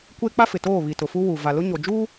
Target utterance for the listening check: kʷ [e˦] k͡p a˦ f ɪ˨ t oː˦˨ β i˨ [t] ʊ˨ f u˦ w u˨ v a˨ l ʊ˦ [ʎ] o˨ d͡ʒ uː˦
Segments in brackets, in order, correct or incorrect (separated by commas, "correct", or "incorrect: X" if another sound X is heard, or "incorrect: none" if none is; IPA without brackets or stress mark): correct, correct, incorrect: ɲ